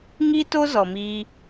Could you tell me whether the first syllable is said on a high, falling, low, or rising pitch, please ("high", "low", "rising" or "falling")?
high